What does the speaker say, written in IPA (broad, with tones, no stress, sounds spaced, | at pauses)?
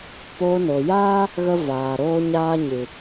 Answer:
p oː˧ n o˨ j aː˦ | ɣ ə˦ v aː˨ ɾ oː˦ ɲ aː˦ ɲ ɨ˨